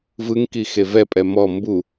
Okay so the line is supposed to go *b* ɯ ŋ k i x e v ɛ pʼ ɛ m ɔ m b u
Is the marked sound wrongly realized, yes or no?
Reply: yes